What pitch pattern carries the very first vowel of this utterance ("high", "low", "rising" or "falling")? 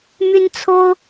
high